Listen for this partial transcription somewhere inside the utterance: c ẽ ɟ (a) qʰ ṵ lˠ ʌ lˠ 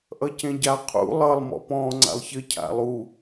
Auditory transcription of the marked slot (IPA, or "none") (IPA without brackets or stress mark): a